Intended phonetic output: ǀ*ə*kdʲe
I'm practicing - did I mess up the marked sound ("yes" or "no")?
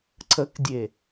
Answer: no